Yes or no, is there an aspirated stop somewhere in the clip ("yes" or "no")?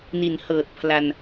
yes